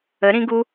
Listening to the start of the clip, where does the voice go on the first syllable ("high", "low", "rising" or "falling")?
rising